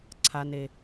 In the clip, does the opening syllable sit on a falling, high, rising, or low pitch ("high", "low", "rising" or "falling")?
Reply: low